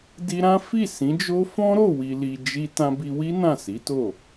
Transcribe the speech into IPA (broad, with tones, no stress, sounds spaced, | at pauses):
d i˧ ɾ ã˦ f i˦˨ s ĩ˨˦ d͡ʒ o˦ f ɔ̃˦ ɾ o˦˨ w i˨ l i˨ d͡ʒ i˧ t ã˧ b i˧ w i˦ n ã˦˨ s i˨˦ t o˦˨